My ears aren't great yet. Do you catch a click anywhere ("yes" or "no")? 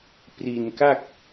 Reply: no